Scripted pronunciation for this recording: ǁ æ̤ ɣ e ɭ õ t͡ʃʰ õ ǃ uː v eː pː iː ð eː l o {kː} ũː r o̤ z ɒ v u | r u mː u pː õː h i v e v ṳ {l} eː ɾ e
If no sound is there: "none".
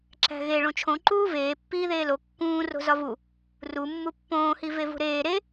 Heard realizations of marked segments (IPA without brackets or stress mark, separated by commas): kː, ɾ